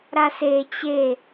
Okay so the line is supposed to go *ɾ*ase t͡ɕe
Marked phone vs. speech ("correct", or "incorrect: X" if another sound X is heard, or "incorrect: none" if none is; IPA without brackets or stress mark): correct